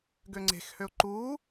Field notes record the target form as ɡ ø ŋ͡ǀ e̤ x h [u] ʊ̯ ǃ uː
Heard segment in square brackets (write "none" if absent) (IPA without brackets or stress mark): ø